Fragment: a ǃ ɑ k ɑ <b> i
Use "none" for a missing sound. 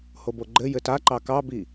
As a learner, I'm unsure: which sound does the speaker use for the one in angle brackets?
b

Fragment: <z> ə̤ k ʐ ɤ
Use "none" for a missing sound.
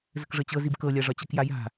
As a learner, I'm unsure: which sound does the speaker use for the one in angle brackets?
z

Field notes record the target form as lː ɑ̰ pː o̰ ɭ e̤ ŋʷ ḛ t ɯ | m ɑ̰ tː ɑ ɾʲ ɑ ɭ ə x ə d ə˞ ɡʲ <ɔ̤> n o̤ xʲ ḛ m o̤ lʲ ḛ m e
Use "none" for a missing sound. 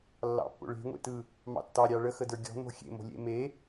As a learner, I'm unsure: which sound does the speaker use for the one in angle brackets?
ɔ̤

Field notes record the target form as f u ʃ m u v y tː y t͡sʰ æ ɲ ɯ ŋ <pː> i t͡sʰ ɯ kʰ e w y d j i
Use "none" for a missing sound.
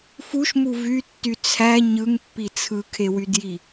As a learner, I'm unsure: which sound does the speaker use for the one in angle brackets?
pː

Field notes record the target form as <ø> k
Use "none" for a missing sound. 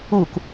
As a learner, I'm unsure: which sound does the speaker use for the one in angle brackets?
u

